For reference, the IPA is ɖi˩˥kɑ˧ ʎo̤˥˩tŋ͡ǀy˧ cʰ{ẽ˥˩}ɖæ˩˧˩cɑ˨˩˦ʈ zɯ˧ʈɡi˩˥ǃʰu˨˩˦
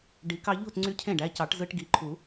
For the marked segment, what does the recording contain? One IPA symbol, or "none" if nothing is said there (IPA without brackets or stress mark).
ẽ˥˩